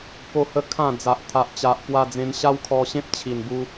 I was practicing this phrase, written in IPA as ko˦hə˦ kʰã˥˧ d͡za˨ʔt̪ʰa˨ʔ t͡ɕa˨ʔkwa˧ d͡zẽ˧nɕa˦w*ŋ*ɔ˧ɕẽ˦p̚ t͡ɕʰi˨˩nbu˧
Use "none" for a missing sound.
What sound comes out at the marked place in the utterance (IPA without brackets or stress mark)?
kʰ